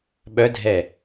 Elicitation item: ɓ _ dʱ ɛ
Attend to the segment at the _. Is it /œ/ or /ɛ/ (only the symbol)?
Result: œ